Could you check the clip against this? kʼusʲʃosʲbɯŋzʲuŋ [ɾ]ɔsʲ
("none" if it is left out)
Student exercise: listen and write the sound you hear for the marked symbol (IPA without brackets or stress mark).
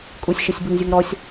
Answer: ɾ